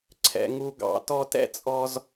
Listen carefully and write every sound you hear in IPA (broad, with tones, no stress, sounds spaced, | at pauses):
ǀʰ ɛ̰˨ ŋ u˨ ɡ ɑ̰˨ t ɔ˧ t ɛ̰˦ t͡sʼ ɔ˧ z